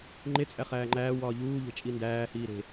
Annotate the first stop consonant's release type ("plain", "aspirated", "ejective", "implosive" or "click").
click